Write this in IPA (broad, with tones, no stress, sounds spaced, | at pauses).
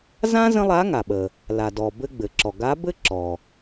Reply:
z ã˥ z ə̃˥ lˠ a˧˥ ŋ a˩ ɓ ə˩ | l a˩ d ɔ˩ b ɘ˧ ɡ͡b ɘ˩ ǁ ɔ˩ ɡ a˧˥ b ɘ˥ ǁ ɔ˩